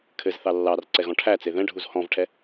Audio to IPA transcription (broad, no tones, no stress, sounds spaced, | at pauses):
kʰ ɘ z θ ɑ lː ɑ r ǀ ɛ ɣ ɔ̃ ʈʰ æ t͡s e ð ɛ̃ ɖʱ u z h ɔ̃ v ʈʰ ɛ